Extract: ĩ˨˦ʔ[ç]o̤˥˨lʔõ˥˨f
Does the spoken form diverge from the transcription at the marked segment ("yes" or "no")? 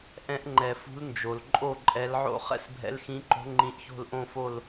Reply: no